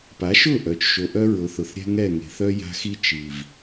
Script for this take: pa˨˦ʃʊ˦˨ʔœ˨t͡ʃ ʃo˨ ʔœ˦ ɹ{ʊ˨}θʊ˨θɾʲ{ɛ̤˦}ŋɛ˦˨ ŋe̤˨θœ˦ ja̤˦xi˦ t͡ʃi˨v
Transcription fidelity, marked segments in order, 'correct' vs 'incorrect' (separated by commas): correct, correct